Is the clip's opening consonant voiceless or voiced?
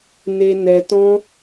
voiced